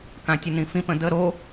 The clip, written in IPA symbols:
kãtʲənĩfĩp ə̃də ɾo

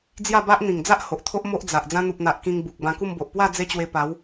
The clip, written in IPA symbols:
d͡zja˥˧ba˦ʔ n̪ĩ˨˩ŋd͡za˦ʔ ho˨ʔt̪ʰo˦ʔmo˦ʔ d͡za˨ʔ d͡zã˧n̪u˨p̚n̪a˨ʔ kĩ˧ŋ bu˨k̚ bã˧ku˥˧mbo˨ʔ pwa˥˧ d͡ze˦t͡ɕwe˧pa˨˦w

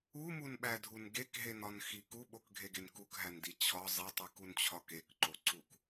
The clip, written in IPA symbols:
umunɓædʱun ɡekɦenɒnxi kuɓokɡʱeɡen kukɦændi t͡ɕʰɒ zˤetˤikunt͡ɕʰɒ kekǃoǀuk

